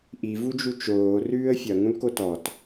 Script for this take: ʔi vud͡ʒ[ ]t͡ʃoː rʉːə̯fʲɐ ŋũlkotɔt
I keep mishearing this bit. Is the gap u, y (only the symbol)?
u